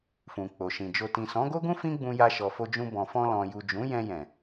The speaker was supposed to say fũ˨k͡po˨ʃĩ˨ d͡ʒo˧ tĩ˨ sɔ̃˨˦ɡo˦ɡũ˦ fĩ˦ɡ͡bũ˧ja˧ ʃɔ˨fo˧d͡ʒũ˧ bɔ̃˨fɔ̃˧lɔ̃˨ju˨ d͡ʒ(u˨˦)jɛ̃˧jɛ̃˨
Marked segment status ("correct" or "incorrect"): incorrect